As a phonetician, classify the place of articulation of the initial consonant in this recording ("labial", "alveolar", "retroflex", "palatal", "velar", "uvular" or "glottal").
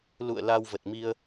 alveolar